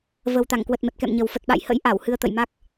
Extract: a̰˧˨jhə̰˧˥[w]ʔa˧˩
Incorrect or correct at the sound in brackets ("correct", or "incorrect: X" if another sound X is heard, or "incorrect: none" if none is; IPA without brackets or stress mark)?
incorrect: j